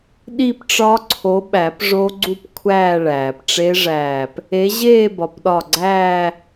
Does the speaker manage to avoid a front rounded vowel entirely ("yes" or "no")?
yes